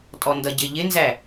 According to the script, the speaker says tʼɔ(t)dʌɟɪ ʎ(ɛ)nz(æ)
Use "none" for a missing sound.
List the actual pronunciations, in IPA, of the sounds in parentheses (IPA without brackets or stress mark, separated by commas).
n, ɪ, æ